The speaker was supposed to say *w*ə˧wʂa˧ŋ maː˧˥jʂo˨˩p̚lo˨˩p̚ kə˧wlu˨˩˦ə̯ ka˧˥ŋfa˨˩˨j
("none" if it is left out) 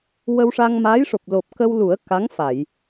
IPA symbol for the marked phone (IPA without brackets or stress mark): w